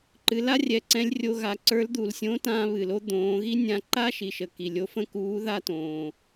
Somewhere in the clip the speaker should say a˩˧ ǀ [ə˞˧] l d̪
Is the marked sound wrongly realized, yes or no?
yes